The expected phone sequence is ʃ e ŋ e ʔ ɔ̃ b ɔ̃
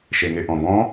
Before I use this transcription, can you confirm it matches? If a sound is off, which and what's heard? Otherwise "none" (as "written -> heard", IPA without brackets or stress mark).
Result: none